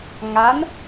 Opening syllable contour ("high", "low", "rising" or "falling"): rising